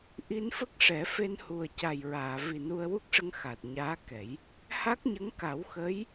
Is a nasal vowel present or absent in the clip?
absent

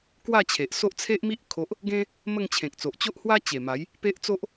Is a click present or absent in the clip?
absent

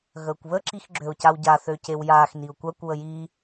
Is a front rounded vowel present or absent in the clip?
present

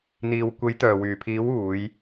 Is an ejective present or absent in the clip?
absent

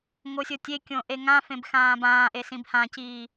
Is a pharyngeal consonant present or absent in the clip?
absent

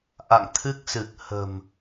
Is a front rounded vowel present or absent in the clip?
absent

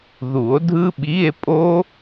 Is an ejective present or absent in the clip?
present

